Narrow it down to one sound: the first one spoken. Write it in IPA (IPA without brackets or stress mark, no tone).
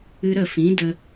ɨ